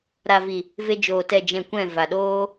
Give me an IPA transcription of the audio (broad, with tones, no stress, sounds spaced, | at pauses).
ɾ a˨ v i˨ | v e˧ d͡ʒ oː˨ t ɛ˨ d͡ʒ ɛ̃˨ kʷ ɛ̃˦˨ v a˨ ɗ oː˦